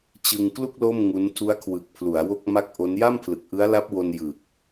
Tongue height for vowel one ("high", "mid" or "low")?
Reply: high